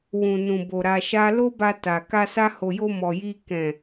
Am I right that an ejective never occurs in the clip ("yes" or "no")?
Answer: yes